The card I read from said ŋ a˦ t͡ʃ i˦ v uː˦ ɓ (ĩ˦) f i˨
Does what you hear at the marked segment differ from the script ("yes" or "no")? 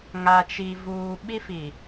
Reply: yes